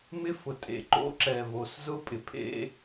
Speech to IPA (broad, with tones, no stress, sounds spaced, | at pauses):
m ɪ˦ f ʊ˨ tʼ ḛ˨ ǃ o̰˦ ǁ ɛ˨ v o˨ s z ʊ˦ pʼ ɪ˨ pʰ ḛ˦